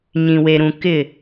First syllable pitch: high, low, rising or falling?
low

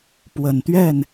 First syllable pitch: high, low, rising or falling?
low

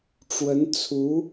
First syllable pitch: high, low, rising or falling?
rising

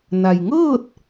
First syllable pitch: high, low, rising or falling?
low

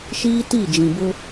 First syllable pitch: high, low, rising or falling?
high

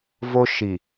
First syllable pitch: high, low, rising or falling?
high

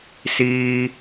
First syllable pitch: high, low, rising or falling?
low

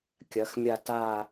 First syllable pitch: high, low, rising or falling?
rising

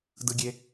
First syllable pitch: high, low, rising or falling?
low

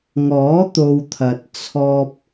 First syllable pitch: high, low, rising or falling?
rising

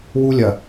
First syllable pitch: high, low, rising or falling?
high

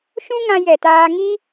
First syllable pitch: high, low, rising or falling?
high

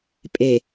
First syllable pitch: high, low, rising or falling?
low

